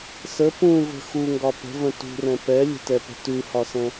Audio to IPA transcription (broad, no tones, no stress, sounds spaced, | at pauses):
s ə p ũ v ə̤ x u ŋ ɡ ɒ p ə̤ v ə̃ t ṳ r ɛ̃ p ɛ lʲ ə̤ t ɛ p ə̤ t ʉ h ɒ s ɛ̃